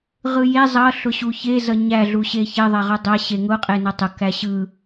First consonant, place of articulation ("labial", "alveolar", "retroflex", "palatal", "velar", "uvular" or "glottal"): uvular